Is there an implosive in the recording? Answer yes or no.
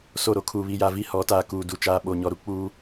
yes